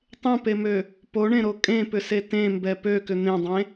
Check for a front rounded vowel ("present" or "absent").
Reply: present